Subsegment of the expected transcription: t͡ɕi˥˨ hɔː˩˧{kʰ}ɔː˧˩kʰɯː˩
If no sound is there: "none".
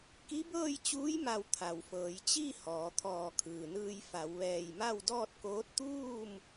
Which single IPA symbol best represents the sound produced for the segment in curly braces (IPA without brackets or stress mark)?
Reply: t̪ʰ